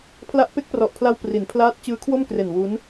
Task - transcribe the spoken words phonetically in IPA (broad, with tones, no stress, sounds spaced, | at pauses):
pʰ l a˦˥ ʔ p e˦˥ k̚ p r ɔ˨˩ ʔ pʰ l a˧ w p r i˩˦ n pʰ l aː˦˥ t̚ t͡ɕ ɯː˦˥ kʰ w o˥˩ m k r e˨˩ n w u˦˥ n